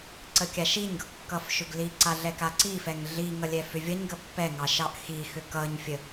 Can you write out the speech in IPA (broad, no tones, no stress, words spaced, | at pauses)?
ǀəkʲaʃiɲɡʌɡ kːʌfʃʏɡliǀa ɮɛkaǀifɛŋ ɮiŋʌ lʲɛfʏvʲʌɲɡə pːɛŋɑ ʃɑʔxixʏ kʌɲfʲə